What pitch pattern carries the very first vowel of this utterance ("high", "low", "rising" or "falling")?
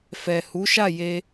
low